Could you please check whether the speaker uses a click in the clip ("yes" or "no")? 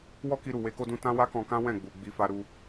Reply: no